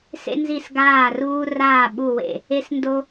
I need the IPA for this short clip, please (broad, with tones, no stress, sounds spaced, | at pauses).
s ḛ˦ n z i˦˨ s ɡ aː˦˨ r uː˦ r aː˦˨ ɓ u˦˨ w ḛ˦˨ | e˦ s n d o˦